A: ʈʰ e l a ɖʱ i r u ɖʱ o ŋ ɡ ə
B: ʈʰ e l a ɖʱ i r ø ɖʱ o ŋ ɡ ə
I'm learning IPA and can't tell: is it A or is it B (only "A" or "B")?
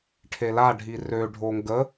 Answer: B